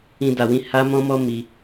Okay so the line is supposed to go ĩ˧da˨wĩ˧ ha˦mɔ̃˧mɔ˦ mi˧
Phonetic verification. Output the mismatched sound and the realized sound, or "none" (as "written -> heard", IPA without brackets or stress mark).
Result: ɔ̃˧ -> ɔ̃˦